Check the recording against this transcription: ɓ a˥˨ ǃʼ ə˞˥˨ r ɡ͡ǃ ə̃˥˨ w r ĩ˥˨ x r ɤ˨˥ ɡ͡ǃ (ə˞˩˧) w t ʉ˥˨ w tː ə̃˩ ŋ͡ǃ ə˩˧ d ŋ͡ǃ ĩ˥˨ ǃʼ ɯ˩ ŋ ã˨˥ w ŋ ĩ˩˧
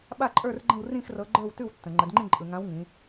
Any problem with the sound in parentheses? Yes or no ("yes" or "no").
yes